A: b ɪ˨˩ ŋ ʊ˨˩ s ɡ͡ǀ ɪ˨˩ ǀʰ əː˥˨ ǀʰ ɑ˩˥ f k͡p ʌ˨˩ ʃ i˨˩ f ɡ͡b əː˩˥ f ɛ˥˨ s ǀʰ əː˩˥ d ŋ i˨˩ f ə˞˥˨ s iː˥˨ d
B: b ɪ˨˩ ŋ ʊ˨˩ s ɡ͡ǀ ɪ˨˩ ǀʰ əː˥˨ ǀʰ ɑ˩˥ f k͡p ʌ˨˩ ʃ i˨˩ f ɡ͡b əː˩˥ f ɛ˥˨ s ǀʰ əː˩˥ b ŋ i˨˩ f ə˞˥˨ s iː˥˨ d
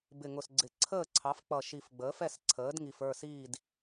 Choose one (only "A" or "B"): A